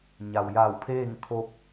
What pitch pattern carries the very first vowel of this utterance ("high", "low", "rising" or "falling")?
low